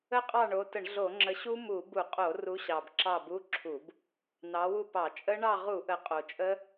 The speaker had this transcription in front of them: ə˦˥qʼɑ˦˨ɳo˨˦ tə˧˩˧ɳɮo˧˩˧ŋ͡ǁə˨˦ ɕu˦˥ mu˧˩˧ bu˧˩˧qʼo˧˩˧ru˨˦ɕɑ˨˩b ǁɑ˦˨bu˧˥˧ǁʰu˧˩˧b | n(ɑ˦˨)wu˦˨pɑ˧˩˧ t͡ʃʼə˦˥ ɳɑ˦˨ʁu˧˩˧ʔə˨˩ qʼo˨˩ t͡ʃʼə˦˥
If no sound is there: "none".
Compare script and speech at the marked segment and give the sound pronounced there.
ɑ˨˦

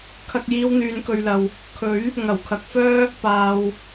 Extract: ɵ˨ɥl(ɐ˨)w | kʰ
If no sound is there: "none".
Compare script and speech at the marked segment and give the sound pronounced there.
ɐ˨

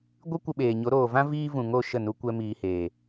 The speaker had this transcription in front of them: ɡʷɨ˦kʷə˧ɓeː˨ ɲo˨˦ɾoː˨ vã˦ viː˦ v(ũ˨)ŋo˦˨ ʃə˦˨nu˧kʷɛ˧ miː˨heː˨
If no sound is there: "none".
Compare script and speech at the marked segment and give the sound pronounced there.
ũ˨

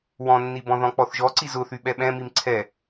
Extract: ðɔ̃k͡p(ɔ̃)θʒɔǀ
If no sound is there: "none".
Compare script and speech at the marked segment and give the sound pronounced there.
ɔ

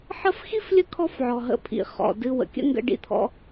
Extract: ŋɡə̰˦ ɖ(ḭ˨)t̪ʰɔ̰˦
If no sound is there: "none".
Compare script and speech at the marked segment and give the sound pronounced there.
ḭ˦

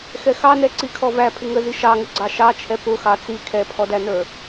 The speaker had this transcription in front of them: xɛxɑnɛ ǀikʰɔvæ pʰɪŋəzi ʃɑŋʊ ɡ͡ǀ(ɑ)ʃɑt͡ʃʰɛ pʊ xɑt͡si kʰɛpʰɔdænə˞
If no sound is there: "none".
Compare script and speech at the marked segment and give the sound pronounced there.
ɑ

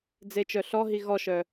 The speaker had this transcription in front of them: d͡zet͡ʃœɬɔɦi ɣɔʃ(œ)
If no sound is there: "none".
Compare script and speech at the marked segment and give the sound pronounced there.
œ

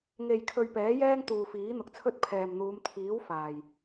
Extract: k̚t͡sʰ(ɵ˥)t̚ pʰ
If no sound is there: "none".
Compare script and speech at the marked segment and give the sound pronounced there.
ɵ˥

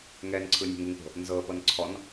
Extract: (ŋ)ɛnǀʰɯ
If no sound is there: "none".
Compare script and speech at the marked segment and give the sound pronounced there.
ŋ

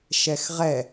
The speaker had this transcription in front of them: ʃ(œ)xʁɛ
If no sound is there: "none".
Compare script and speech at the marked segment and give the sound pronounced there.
ɛ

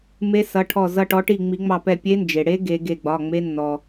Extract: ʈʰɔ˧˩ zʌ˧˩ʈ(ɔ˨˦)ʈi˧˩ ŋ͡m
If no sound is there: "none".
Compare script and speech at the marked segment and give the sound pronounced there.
ɔ˨˦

